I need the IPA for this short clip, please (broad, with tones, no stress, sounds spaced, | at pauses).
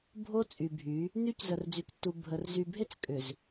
bʱ o˦ t͡sʼ y˨ bʱ y˨˦ | n y˦ c z ə˨ r d͡z y˨ k tː u˨ bʱ ə˨ r z y˨ bʱ e˦ t͡s kʼ ʏ˨ z